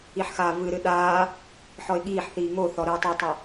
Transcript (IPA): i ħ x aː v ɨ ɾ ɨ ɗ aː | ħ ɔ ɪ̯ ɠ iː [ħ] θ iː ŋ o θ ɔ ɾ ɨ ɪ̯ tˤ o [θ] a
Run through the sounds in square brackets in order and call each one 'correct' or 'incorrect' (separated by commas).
correct, incorrect